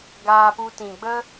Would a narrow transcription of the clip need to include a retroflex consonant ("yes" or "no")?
no